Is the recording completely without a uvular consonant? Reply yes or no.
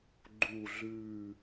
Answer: yes